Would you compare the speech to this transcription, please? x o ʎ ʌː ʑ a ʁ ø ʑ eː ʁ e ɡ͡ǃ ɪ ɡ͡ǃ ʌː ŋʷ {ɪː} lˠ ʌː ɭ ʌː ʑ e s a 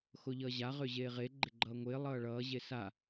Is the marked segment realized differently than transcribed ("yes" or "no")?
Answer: no